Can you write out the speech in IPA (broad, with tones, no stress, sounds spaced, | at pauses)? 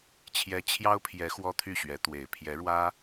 t͡ɕʰ j ɛ˧˥ t͡ɕʰ j ɑ˥ ʊ̯ pʰ j ɛ˧˥ x w ɔ˥ t̪ʰ y˥˩ ɕ ɥ ɛ˧˥ t̪ w e˨˩ ɪ̯ pʰ j ɛ˧˥ ɻ w ä˥